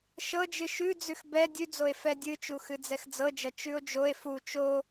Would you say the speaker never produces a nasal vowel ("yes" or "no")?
yes